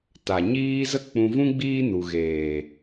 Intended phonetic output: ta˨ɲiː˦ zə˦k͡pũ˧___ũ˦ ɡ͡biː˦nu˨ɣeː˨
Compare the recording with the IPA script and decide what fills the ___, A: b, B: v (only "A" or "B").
B